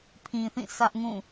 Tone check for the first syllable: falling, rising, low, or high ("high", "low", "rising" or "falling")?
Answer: low